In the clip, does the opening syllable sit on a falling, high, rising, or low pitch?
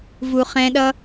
low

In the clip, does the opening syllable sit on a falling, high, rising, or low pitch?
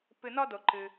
low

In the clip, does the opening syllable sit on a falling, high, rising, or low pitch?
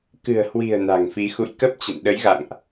low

